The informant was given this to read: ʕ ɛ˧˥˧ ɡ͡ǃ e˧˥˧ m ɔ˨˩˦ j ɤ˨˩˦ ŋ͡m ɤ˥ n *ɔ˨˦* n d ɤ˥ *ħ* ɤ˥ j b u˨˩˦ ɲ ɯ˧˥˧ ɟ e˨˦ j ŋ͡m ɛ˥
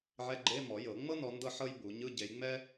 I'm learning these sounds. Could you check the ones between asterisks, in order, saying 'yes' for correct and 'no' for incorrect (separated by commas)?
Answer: yes, yes